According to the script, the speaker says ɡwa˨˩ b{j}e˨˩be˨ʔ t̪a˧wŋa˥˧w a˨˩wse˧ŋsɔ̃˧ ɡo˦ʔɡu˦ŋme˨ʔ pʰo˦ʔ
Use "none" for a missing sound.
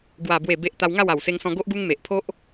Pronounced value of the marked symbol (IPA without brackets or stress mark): w